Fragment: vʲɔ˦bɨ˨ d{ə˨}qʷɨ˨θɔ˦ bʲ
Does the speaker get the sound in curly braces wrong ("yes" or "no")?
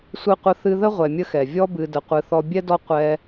no